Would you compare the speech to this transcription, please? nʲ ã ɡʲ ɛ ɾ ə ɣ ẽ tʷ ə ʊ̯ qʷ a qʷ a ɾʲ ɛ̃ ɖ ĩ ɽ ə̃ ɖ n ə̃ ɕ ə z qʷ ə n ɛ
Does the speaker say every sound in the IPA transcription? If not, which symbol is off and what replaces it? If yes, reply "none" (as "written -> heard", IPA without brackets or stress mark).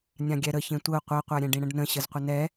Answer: ɣ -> ç